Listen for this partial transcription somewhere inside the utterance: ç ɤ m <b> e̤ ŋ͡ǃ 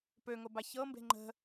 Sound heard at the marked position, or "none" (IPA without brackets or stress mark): b